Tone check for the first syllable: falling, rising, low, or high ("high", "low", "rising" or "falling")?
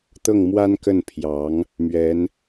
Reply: falling